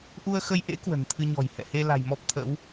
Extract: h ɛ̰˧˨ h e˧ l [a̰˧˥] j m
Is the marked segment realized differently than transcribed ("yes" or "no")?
yes